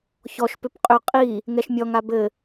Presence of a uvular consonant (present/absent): present